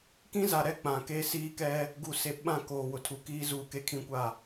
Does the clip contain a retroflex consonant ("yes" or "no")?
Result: no